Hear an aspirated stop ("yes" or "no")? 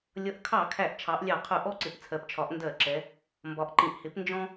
yes